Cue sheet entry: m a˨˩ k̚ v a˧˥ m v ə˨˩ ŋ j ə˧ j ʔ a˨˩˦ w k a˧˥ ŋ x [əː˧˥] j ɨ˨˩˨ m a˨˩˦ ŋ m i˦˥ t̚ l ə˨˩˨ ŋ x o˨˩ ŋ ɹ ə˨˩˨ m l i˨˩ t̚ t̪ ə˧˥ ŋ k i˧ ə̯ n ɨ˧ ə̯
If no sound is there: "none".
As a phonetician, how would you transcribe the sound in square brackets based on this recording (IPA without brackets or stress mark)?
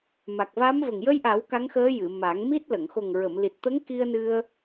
əː˧˥